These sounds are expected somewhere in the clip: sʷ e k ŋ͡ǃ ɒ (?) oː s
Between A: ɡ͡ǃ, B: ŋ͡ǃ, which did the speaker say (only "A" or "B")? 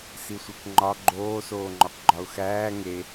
A